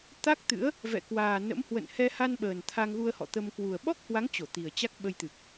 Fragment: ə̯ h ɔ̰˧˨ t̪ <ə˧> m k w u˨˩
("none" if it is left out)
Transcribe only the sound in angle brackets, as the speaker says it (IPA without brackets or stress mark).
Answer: ə˧